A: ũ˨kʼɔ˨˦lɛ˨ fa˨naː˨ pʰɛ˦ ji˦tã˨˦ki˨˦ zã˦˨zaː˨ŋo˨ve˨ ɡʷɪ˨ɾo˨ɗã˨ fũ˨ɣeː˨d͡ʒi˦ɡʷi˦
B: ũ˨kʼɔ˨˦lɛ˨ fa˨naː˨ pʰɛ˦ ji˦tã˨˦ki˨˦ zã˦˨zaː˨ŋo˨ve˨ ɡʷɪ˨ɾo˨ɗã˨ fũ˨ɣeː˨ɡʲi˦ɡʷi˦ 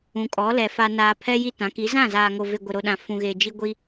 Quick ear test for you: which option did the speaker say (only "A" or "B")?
A